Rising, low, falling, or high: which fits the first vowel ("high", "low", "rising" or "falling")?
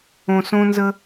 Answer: low